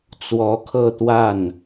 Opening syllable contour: rising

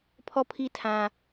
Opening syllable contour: high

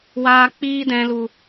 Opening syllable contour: low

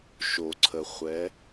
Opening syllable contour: low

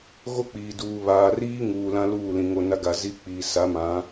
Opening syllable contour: high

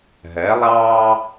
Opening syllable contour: rising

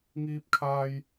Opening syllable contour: high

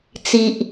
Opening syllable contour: low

